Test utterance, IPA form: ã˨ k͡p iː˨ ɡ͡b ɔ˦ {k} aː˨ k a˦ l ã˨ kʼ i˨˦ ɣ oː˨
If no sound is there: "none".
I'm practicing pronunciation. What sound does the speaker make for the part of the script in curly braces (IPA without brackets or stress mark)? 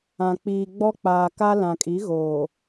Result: k͡p